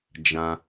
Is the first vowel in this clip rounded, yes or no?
no